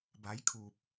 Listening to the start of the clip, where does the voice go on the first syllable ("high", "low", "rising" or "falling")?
rising